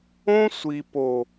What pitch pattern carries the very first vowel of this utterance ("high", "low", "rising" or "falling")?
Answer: high